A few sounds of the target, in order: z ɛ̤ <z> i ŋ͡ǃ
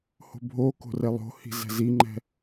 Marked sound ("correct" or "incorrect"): correct